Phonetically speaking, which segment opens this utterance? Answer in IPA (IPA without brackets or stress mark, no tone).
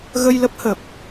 ɣ